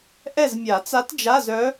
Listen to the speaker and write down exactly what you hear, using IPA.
ʔ ɛ˦˨ z mʲ a˨˩˦ t͡s a˧˥ t d͡ʒ a˧˥˧ z œ˧˥

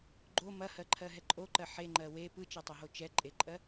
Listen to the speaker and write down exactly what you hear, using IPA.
ɡ͡ǃ o m ɐ h ɜ ǃʰ ɜ ɦ ɛ ǃʼ o ǃ ɜ ħ e ŋ͡ǃ ɜ w e p ɯ t͡ʃ e tˤ ɐ ɦ o t͡ʃ ɛ ǃʼ e ǃʼ ɜ

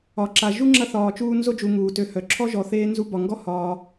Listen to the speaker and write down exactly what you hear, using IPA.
ɒ˨ ǁ a˨ ʒ u˥ ŋ͡ǁ ɐ˦ θ ɒː˨ t͡ʃ uː˦ n z o˥ d͡ʒ u˨ ŋ uː˩ t ø˨ h œ˩ ǁʰ ɔ˥ ʒ ɔ˨ θ eː˦ n z u˦ b ɒ˨ ŋ ɡ ɔ˥ h ɒː˨

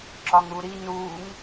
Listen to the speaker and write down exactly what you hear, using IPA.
ǁ ɒ ŋ ɾ u ɾ i n u ŋ

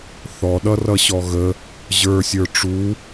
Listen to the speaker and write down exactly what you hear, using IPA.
θ ɔ ɗ ʌ r ʌ ɕ ɔ ɣ ə | ʑ ə˞ sʲ ə˞ ʈ͡ʂ u

